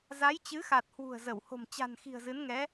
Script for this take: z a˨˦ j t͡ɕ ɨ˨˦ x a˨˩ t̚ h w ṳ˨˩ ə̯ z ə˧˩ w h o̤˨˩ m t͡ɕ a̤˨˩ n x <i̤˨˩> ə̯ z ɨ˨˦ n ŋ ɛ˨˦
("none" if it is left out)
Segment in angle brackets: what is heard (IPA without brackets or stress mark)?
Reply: i̤˨˩